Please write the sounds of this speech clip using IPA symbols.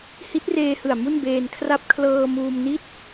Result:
h i˦˥ t̚ r eː˧ h ɯ˨˩ a̯ m u˥˩ n b eː˧ n kʰ r a˦˥ p̚ kʰ l ɤː˧ m uː˧ m n i˥˩ t̚

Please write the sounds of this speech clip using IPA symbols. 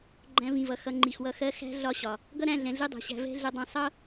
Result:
ɡ͡ǃ æ̃˧ v ĩ˨ v ʌ˨ x ʌ˧ ŋ͡ǃ i˨ x w ʌ˧ x ɜ˦ x æ̤˦ ɮ ɒ˦˨ ɕ ɒ˨ | ɡ ʌ˦ ɾ æ̃˦˨ ɮ ɛ̃˨ ɮ i˦ dˤ ɛ̤˨ ɕ æ̤˧ v ɛ̤˦ ɮ ɛ˧ dˤ ɛ̃˧ sˤ ʌ˦

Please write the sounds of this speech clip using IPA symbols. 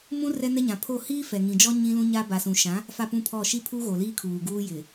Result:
m ũ˦ r ɛ˦ n ɛ˦ ɲ ã˨ pʰ o˦˨ h iː˦ f ɛ˨ ŋ ĩ˨ d͡ʒ ɔ˦ ɲ ĩ˦ l ũ˦ ɲ a˦ b a˨ s ũ˨ ʃ ã˨˦ | f a˦˨ p ũ˦ pʰ ɔ˦˨ ʃ i˦ pʰ u˦ ɣ o˨ l iː˦ kʰ uː˨ ɡ uː˦ j ɪ˨

